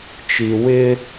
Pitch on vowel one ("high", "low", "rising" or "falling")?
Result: low